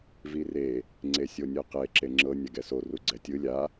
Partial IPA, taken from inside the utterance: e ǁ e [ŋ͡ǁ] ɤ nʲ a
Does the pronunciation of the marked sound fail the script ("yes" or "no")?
no